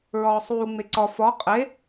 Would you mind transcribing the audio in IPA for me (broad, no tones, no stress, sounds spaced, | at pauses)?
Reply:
ɹ ɒː sˤ uː ŋ͡m e ǀ ɒ f ɒ qʼ e